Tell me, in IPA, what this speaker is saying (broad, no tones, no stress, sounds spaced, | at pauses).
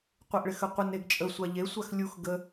qʷ ɪ ʔ ɭ ɪ x ə qʷ ə n e ɡ t͡ʃʼ ə sʷ a ʎ e sʷ a x lʲ u x ɡ ə